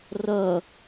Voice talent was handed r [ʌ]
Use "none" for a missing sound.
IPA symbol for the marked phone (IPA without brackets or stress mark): ʌ